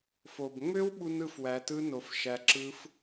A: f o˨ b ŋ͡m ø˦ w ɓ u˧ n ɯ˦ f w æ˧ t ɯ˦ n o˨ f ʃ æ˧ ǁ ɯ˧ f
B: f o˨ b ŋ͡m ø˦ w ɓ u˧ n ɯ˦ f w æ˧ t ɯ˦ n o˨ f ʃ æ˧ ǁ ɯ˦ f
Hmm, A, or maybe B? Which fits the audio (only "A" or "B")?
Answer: B